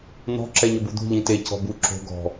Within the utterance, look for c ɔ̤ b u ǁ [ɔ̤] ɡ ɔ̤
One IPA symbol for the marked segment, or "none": o̤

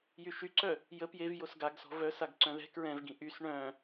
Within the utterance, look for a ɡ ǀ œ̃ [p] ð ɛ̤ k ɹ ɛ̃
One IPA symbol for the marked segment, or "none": none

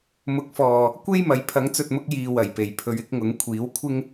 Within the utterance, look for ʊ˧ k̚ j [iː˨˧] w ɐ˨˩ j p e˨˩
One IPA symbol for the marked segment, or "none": iː˨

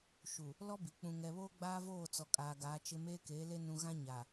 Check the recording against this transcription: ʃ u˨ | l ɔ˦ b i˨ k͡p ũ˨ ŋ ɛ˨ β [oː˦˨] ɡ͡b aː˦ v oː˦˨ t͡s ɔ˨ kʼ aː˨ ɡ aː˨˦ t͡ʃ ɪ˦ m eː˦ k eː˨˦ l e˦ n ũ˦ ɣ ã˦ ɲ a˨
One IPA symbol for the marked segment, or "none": oː˦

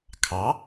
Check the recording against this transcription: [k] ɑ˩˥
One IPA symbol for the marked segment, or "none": kʰ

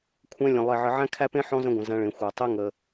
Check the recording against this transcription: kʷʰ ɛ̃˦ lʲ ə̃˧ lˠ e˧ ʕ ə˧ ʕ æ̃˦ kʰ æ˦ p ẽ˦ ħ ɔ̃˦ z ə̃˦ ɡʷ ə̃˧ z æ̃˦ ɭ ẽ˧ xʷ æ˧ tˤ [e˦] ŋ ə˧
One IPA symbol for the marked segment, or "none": e˦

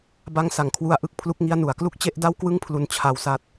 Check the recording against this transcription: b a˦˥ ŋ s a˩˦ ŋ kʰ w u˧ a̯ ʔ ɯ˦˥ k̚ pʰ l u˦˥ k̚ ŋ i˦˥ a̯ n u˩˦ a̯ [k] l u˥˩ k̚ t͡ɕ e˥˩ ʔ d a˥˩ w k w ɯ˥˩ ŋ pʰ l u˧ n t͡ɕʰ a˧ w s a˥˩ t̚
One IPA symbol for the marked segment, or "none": k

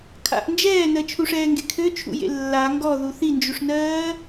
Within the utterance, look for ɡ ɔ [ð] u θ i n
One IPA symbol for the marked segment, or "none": ð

